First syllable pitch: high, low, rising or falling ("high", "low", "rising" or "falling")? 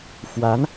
rising